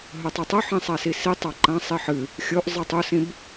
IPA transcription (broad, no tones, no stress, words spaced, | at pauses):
ɦɵtˤetˤɵħĩ sˤasisitˤa ǃãsˤi ħɨ | xʲoʔ zˤɨtˤusĩb